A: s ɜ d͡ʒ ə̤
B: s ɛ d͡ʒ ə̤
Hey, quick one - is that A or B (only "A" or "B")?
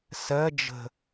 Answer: A